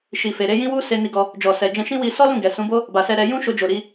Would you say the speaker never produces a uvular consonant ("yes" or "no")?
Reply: yes